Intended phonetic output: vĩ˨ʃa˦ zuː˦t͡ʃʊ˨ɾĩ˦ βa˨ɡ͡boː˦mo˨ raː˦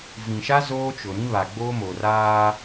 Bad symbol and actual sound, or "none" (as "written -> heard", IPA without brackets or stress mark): uː˦ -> oː˦